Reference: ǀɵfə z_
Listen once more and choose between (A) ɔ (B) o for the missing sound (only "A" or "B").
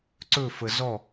A